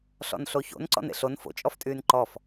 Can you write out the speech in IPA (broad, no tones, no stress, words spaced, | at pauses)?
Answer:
ɬɔ̰nɬoço̰n ǀɔ̰nḛɬon fo̰ t͡ʃʼɔftʼyːnǃɔf